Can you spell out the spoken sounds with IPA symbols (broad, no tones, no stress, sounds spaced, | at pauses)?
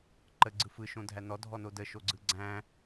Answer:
ǃ ə ɡ͡ǀ ɯ f ɯ ʃ õ dʱ æ n ɔ dʱ ɔ n o d ə ʃ o ɡ͡ǀ ɯ ɡ͡ǀ æ̃